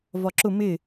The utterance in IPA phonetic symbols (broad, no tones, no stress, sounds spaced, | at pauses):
v ɒ ǁ ʊ m ɪ